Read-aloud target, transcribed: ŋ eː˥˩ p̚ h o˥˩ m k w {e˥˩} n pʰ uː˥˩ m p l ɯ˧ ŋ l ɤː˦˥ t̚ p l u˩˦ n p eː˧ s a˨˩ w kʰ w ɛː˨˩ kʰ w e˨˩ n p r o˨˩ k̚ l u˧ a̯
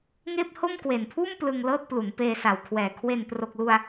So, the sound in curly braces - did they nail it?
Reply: no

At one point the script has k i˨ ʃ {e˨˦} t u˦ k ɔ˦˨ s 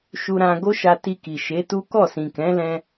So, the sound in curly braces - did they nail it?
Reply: yes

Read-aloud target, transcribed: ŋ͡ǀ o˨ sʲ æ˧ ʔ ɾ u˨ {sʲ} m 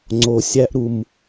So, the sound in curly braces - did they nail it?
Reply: no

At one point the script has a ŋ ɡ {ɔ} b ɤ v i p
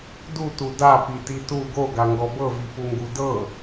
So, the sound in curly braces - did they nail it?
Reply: yes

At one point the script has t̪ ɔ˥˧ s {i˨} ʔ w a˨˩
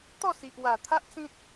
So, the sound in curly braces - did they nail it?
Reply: yes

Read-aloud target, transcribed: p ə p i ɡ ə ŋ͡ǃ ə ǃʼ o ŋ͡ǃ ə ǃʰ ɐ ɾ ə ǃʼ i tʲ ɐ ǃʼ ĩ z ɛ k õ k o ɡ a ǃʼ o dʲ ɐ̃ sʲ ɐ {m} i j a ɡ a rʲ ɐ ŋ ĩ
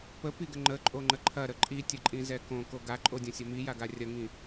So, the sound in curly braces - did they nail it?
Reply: yes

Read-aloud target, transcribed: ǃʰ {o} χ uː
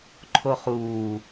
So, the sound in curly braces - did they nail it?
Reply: yes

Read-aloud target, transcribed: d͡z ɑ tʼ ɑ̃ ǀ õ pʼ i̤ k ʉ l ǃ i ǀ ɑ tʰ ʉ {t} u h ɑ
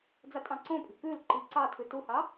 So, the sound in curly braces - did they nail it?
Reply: yes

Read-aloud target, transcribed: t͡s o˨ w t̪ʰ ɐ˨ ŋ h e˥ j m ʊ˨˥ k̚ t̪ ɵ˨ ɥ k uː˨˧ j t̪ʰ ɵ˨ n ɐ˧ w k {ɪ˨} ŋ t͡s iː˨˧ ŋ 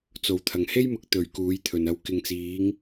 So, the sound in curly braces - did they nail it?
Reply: yes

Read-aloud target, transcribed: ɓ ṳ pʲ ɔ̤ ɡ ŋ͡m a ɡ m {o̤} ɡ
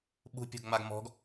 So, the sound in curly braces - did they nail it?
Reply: no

